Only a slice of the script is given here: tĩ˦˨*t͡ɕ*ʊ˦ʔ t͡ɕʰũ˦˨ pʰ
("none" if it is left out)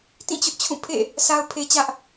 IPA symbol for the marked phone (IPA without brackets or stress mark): t͡ɕ